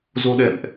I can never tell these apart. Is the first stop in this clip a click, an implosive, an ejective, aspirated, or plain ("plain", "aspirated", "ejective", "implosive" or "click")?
implosive